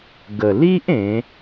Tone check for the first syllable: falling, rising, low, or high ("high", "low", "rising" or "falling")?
low